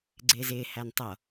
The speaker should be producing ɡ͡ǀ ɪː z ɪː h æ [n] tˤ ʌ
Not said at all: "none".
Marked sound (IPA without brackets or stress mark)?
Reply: n